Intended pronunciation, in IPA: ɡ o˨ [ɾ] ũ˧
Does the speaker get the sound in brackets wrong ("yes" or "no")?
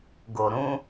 no